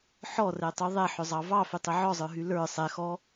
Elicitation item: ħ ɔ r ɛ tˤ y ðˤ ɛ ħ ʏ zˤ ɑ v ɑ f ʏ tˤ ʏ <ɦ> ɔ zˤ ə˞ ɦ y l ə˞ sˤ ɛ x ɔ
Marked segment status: incorrect: ʕ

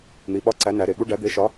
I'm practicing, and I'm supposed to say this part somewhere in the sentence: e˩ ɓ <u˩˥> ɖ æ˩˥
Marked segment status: incorrect: u˥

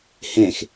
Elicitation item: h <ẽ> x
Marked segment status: correct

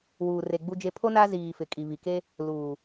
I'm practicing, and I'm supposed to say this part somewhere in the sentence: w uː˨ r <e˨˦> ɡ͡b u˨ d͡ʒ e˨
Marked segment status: incorrect: e˨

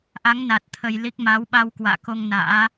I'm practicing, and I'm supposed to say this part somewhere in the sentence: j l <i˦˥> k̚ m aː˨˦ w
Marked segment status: correct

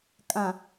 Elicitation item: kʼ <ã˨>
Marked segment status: correct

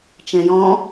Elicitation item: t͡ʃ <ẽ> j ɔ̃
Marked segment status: incorrect: ɛ̃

